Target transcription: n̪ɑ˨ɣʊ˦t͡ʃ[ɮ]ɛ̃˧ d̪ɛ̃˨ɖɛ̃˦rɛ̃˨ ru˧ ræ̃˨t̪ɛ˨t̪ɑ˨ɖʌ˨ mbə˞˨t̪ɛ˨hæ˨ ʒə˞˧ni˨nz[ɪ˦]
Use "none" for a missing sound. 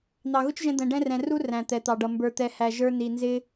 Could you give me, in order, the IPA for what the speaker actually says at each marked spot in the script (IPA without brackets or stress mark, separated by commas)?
ʒ, ɪ˦